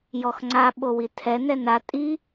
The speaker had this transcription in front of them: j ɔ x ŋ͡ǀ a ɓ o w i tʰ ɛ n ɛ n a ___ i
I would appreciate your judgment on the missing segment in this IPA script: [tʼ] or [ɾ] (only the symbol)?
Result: tʼ